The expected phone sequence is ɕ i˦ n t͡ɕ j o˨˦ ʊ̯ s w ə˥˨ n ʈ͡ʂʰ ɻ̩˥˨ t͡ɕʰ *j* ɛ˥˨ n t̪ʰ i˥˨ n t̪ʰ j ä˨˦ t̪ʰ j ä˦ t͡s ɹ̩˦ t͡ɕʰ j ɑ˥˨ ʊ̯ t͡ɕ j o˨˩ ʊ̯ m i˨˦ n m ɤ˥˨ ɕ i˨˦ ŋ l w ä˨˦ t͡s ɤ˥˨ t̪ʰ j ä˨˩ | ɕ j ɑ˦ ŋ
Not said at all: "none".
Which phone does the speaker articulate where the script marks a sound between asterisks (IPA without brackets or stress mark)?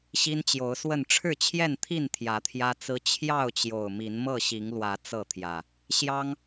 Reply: j